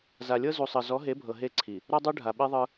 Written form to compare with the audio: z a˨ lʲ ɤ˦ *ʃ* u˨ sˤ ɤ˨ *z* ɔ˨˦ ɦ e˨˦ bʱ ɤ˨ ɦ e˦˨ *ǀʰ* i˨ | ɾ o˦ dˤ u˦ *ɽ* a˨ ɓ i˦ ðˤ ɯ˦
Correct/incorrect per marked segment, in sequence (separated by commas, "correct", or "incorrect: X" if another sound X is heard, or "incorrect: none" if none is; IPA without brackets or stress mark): incorrect: z, correct, correct, incorrect: ɖʱ